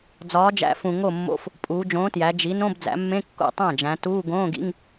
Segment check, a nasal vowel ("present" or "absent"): present